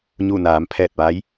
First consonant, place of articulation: palatal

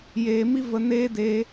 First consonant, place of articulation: palatal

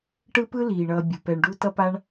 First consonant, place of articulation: retroflex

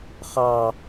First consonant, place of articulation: uvular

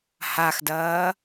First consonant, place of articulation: glottal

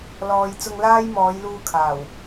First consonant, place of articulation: alveolar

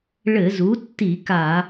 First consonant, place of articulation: retroflex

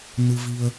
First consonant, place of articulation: alveolar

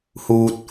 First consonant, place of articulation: glottal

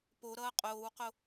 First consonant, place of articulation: labial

